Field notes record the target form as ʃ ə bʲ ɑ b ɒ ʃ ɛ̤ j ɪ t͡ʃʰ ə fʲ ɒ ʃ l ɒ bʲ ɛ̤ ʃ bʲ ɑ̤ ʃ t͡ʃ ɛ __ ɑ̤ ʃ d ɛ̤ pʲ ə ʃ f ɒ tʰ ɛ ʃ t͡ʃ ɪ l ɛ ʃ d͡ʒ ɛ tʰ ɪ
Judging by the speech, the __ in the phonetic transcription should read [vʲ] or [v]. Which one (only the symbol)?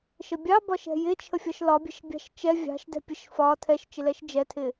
vʲ